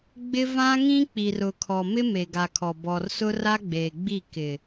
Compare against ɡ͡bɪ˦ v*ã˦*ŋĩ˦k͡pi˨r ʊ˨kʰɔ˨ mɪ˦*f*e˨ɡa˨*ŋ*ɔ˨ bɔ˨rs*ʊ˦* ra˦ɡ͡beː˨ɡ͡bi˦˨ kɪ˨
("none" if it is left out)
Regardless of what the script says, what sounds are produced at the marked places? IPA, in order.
ã˦, m, kʰ, ʊ˦

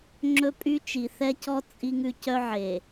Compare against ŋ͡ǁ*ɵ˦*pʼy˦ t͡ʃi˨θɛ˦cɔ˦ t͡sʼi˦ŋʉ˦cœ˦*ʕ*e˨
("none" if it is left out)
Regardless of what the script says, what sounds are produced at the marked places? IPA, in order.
ɵ˦, ʕ

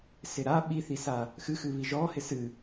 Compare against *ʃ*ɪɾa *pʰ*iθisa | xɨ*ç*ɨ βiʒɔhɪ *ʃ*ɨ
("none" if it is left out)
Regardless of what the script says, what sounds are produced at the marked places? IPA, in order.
s, ɓ, x, s

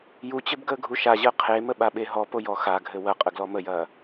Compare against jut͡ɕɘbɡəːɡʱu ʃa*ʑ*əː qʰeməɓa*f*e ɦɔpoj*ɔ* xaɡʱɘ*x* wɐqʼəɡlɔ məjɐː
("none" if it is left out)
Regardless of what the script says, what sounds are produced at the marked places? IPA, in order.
ʑ, ɓ, ɔ, none

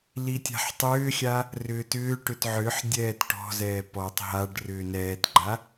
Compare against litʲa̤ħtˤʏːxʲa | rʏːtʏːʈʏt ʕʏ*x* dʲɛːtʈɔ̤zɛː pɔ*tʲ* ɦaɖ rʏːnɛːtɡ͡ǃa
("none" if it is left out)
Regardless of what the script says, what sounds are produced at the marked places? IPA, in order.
ħ, tˤ

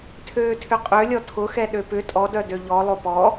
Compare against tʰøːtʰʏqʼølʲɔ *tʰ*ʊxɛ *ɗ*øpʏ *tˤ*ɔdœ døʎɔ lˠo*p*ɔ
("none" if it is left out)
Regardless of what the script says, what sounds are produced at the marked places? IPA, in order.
tʰ, ɗ, tʼ, p

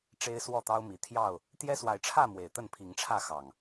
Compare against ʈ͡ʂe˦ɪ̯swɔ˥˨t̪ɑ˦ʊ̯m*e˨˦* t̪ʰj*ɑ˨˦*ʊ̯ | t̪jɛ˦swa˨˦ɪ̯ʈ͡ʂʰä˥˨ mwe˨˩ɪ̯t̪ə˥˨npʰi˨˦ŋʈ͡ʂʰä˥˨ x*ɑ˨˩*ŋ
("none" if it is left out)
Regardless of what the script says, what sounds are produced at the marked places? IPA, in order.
i˨˦, ɑ˥˨, ɑ˨˩

